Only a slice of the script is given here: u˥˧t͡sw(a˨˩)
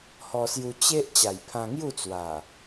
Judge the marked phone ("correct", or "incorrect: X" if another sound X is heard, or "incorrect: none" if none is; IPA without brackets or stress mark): correct